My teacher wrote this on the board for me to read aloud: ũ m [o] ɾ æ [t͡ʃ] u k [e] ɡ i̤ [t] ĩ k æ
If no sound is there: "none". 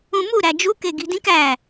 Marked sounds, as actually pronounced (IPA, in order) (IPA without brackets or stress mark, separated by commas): u, d͡ʒ, e, d